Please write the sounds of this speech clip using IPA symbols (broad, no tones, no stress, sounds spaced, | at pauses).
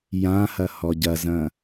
j ã h ɐ h ɔ ɟ ɐ z ɐ̃